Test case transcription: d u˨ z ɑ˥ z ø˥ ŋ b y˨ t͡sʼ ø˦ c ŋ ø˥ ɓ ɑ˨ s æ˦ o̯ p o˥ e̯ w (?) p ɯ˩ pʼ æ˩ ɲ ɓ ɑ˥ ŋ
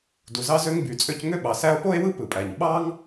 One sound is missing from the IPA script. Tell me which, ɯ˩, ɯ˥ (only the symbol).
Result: ɯ˥